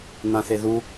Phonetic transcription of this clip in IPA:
n̪ ã θ e ð u

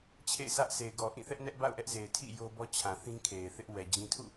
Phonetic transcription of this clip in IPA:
t͡ɕʰ ḛ˦˨ ɪ̯ sʰ ä˦ ʔ sʰ e˨ ɪ̯ ɡ ɔ˨ ʔ ĩ˦˨ θ ɛ˦ ʔ n ɛ˦ ʔ b a̰˦˨ ʊ̯ ʔ ɛ˦ ʔ z e˨ ɪ̯ tʰ ḭ˦˨ j o˦ b ɔ˦ t͡ɕʰ ã˨ θ ĩ˦ kʰ e˨ ɪ̯ θ ɪ˦ ʔ w ɛ˨ d͡ʑ ĩ˦ tʰ ṵ˦˨

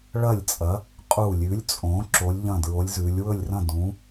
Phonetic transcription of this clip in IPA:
ɭ ɐ˧˩ lʲ t͡sʼ ɐ˩˧ | qʼ u˧˩ lʲ ʉ˩˧ lʲ t͡sʼ õ˩˧ ǁ o˩˧ lʲ ʎ ɐ̃˧˩ d ɹ o˩˧ lʲ z ʉ˩˧ lʲ w ɵ˧˩ lʲ r ɐ̃˧˩ d ũ˩˧

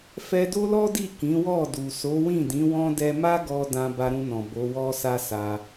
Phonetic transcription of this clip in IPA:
f ɛ˧ d o˦ l ɔ˦ d i˦˨ k ĩ˨˦ w ɔ˦˨ d u˨ s o˨˦ w ĩ˦˨ d ĩ˨˦ w ɔ̃˦ d ɛ˧ m a˦ ɡ ɔ˧ d ã˧ b a˧ ɾ ũ˧ n ɔ̃˨ b o˨˦ w ɔ˦ s a˦ s a˧

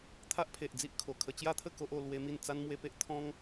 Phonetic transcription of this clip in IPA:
t̪ʰ a˦ ʔ pʰ e˨ ʔ d͡z i˦ ʔ kʰ o˨˩ kʰ ə˧ t͡ɕ j a˦ t̪ʰ ə˥˧ k o˦ ʔ o˧ l w e˦ m i˥˧ n t͡s a˦ n m w e˦ p e˦ ʔ t̪ʰ ɔ̃˦ ŋ

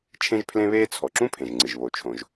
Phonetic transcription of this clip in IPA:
t͡ʃʰ ẽ˥ ʒ pʰ l ẽ˥ β eː˥ t͡sʰ ɔ˩ ǁ ũ˥ pʰ ẽ˩ ʒ ŋ͡ǀ ɨ˩ ʒ β o˩ t͡ʃʰ õ˩ ʒ

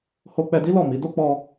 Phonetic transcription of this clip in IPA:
h o˧ k͡p ɛ˧ d i˦ l ɔ˦˨ m i˨˦ d o˦ k͡p ɔ˧

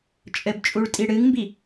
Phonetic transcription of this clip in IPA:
t͡ʃʼ ɘ b t͡ʃʼ u ɭ tʼ i ɽ ɨ ŋ m b i

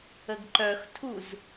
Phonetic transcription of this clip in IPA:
ə ɡ ǃ œ x tʰ u z

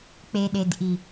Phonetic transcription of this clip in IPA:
k͡p e˨ ɗ e˨ d ʔ i˨

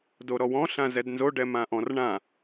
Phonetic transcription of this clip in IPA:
d o ɾ ɔ w ɔ̃ ɬ ã z ɛ d n z o ɖ ɛ m ã ʔ ɔ̃ r ɳ ã

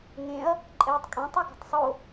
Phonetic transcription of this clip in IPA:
ŋ ẽ ɐ̯ | ǃʼ ɛː tˤ kʼ ẽ tˤ ɛ ɡ ɔ̤ tˤ sˤ o

